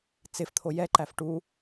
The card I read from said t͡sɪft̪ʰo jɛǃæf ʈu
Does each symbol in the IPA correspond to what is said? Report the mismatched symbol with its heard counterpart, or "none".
none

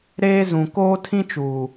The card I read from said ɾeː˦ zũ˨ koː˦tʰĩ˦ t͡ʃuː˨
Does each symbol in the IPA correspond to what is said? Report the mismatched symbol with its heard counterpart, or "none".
none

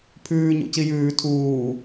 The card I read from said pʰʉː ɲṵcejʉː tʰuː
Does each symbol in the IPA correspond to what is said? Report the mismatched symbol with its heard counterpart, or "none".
e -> i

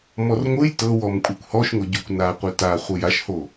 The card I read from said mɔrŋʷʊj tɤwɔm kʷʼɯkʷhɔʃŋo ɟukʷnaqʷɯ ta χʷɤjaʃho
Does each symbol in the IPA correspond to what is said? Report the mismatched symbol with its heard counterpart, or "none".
ʊ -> ɯ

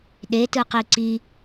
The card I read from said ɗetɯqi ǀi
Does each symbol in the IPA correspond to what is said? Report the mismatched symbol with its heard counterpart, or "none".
none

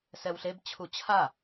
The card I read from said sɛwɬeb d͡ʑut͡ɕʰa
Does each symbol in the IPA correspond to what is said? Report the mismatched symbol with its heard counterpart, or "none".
d͡ʑ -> t͡ɕʰ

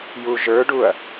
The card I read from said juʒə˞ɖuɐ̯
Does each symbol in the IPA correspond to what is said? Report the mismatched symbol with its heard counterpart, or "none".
none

